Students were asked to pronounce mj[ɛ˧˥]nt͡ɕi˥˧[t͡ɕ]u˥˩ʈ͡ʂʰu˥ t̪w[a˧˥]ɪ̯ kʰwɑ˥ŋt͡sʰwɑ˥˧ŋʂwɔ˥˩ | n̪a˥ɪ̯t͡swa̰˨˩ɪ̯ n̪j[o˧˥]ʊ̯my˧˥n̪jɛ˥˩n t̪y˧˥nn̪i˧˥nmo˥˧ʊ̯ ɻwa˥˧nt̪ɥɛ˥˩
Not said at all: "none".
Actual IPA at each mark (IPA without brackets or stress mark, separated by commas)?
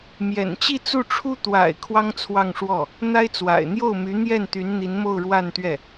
ɛ̰˨˩, t͡s, a̰˨˩, o˥˩